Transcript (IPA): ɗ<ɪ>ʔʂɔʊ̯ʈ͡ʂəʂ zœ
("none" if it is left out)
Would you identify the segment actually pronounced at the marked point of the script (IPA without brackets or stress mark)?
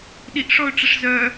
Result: i